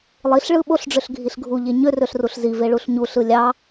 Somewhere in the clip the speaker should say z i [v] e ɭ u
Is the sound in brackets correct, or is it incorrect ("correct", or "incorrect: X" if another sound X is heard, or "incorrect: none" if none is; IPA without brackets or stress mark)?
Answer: correct